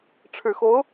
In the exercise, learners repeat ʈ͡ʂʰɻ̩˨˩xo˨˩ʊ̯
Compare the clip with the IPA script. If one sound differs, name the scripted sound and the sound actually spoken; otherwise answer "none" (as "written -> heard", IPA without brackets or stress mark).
o˨˩ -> o˧˥